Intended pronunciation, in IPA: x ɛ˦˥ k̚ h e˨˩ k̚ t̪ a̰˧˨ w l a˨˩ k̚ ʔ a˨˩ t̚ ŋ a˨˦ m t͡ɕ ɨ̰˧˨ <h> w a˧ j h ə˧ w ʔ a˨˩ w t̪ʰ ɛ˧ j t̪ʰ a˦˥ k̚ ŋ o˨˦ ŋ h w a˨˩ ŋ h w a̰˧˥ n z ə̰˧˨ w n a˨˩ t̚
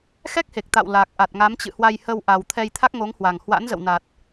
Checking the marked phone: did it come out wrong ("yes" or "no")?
no